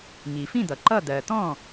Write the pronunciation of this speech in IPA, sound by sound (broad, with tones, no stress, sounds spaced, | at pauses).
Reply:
ŋ i˩ f ĩ˥˩ d̪ ʌ˩ ǃ ʌ˥˩ d̪ ɜ˩ t̪ ɔ̃˥˩